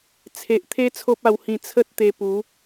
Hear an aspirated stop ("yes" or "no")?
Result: yes